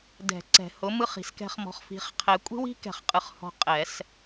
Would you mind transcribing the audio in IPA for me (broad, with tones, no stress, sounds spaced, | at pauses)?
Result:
d ɛ̤˨˩˦ ǀ ɛ̤˨˩˦ h ʊ˩˥ m ɯ˦˨ χ i̤˨ s k ɛ̤˦˨ χ m ɔ̤˨ χ f i̤˨˩˦ χ qʰ ɛ˨˩˦ kʷʼ i̤˦ w i̤˦ k ɛ̤˨˩˦ χ qʼ ɯ˨ χ h ɔ̤˨ qʼ ɛ˨˩˦ s